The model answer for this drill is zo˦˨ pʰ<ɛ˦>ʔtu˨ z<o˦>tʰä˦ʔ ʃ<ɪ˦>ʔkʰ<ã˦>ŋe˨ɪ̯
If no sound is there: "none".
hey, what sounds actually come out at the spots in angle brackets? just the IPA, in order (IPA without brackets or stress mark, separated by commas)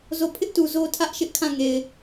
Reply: ɪ˦, o˦, ɪ˦, ã˦˨